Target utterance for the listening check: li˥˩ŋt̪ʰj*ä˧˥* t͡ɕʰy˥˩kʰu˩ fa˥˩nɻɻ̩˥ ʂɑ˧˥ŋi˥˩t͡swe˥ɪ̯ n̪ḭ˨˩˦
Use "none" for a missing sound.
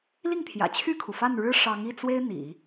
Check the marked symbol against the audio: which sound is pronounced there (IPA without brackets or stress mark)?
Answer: ä̰˨˩